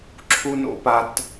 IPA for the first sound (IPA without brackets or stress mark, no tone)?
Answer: ǁʰ